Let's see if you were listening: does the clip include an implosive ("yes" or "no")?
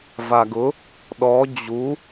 yes